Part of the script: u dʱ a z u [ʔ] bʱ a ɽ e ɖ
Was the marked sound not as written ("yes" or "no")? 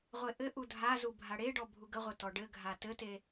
yes